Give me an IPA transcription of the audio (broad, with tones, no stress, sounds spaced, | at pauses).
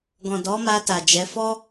ɡ ɔ̃˨ d ɔ˨˦ m a˧ t a˨ d͡ʒ ɛ˨˦ f ɔ˦